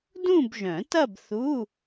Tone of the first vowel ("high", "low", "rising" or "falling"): falling